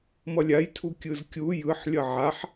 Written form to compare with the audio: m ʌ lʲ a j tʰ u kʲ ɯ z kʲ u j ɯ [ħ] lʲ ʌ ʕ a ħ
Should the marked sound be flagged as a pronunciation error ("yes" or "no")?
no